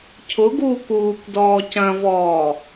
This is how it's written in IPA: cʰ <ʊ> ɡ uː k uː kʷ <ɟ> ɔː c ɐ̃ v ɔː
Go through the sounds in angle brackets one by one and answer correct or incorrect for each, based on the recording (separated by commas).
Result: correct, incorrect